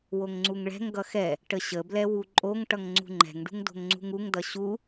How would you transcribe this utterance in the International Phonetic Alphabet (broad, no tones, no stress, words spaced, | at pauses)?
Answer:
woŋŋ͡ǀuŋɭɛ̤ŋɡʌ xɛ | ʈəɕəblɛ wuǃʼoŋʈʌŋ ŋ͡ǀṳŋ͡ǃɛ̤ŋɖṳŋ do̤ŋŋ͡ǀṳŋuŋdʌ ɕu